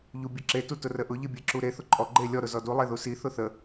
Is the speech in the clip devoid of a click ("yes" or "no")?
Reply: no